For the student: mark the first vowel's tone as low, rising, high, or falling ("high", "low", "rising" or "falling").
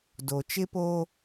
low